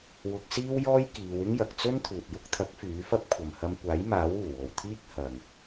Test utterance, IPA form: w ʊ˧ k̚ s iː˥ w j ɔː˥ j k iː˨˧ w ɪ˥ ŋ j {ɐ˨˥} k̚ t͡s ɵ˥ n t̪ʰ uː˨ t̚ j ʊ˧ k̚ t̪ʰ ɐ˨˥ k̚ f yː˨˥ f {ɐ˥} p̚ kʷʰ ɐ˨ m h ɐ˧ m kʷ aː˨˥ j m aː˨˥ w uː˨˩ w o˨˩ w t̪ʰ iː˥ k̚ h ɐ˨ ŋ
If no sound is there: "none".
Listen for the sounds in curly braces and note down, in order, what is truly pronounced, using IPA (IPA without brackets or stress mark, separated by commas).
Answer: ɐ˨, ɐ˥